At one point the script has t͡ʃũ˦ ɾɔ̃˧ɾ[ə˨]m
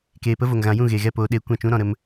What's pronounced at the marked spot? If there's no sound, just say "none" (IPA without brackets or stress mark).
ə˦